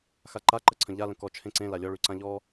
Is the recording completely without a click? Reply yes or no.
no